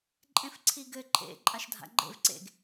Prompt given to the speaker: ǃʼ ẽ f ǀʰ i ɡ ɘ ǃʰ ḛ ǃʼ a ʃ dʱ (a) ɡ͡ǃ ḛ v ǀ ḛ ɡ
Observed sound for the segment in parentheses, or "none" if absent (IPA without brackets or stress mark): a̰